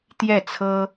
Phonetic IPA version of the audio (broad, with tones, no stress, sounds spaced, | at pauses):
t̪ j ɛ˥˩ t͡sʰ ɤ˥